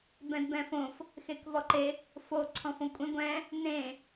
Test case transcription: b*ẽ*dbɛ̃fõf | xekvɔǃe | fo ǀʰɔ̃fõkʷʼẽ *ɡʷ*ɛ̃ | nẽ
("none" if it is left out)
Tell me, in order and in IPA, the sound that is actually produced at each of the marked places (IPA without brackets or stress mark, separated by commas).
ɛ̃, ɡʷ